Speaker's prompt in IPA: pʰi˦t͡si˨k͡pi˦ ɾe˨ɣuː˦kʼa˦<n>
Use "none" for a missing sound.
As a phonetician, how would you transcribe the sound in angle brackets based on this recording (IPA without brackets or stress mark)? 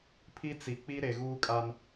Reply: n